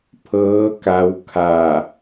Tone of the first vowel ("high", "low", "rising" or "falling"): rising